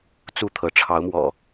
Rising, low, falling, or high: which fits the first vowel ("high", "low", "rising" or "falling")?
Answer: falling